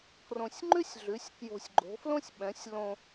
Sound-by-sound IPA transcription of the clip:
krõ˧sʲŋ͡ǃʉ˥sʲ ɮʉ˨˥sʲ kjo̤˧sʲɡ͡ǃo̤˨˥flõ˥sʲɓɛ̃˨˥sʲ lõ˧

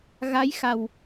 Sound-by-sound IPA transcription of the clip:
ɣa˧˥jxa˨˩w

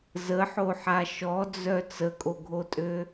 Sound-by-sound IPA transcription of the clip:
zəħoħa ʃɔd͡zœ t͡səkʼoɡʱotʼø

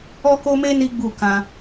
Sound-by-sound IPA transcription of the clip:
ɔ˦ko˦me˦ ni˦ɡ͡bu˦˨ kã˧

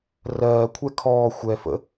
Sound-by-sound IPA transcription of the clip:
rɜːkʷʰɛ kʰɔː xʷɛ fə̰

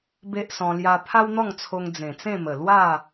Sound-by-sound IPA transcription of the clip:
be˦ʔsɔ̃˧ lja˧pʰa˦wn̪ɔ˥˧ŋt͡sʰo˧ŋ d͡zẽ˨˩t͡sẽ˥˧mə˨˩ lwa˥˧

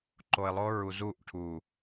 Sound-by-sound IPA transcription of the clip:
ǃo˨ɪ̯lˠo˦ɹu˨ zu˦˨ʔ ʈʰu˨

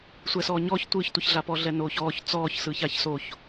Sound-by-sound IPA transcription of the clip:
sʷɛsɔːɲɔç tʷɯːçtʷɯçɮapɔ ɮɛnoːçɔːç t͡sɔːç sɯːçaç soç

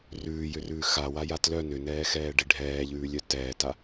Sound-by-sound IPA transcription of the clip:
rʉːjʏrʉː xawaja tlœ nʏnɛːxɛːɖi ɖʱɛːʎʉːlʲœ tɛːta

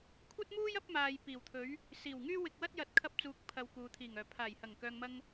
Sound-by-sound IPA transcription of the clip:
kʷʰɐ˥t̚muː˥j ɐ˥p̚maː˨j piː˨˩wt̪ʰɵ˨˥ɥ | siː˨˩wŋyː˥wɪ˧k̚wɐ˥t̚ jɐ˨˥t̚kʰɐ˧p̚t͡suː˨k̚ pʰɐ˨˧w kuː˨ t̪ʰiː˨˩ŋœː˨˩ pʰaː˨˩jhɐ˨˩ŋkœː˨ŋmɐ˧ŋ

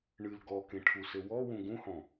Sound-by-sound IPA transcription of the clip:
ɳɨl ɡɔkẽʈʰusɘ wɔwũ ɡũhɔ̃

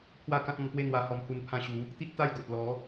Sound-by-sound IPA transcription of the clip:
pʰwa˥˧kã˦t̚ɔ̃˧npwe˥˧ n̪wa˧hɔ˧mhu˧n pʰã˧ɕu˨˦ | t̪i˦t̚t̪a˥˧jɡo˨t̚lɔ˨˦

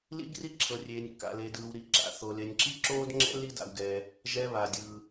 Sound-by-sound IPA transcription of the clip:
lḭ˥ɡri˥ǁʰɤ˧ rʲeː˧nʲkːa̰˧le˧dɯː˧w ɾi˧ǁa̰˧ θo˧ le˧nʲǁi˥ǁoː˥dŋ͡ǁɛ̰˥ li˥da̰˧wɡɛː˧ | ʒɛ˧βa˩dʲɯː˩

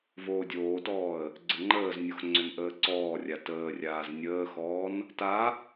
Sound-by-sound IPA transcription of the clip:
voːdʲoːtɔːə̯ | ɡ͡ǀəŋ͡ǃəːznʲox ŋ͡ǀʏnʔəːǀɔːrʲa təːrʲaːz nʲəːxɔːn | ta

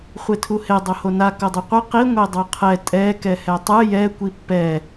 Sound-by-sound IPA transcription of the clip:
χʷetʰuhe dˤohona kodˤeqʷɯ qi ŋʷedˤoqʰɛ tʼɛ kɛhɛtˤɯ jɛ kʷipːɛ

